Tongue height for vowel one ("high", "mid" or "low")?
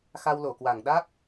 low